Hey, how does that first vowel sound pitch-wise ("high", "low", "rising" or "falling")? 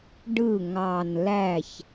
falling